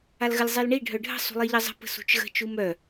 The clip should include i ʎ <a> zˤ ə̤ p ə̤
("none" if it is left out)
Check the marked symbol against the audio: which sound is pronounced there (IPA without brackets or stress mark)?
ə